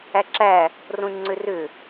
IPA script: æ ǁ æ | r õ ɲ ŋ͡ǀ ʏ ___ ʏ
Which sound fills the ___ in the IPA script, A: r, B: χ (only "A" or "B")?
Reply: A